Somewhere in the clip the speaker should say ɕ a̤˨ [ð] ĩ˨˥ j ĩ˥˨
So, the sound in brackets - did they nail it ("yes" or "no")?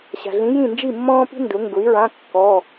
no